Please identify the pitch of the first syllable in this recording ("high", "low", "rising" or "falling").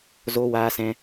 high